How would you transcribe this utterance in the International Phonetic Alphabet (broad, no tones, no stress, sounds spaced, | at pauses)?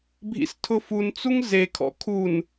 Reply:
bʱ ḭ s tʰ ʊ f u n t͡s u ŋ z e kʰ ɔ̰ kʰ u n